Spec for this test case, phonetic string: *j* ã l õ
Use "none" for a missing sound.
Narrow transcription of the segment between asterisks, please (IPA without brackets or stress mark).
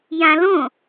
j